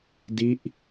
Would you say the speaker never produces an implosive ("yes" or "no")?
yes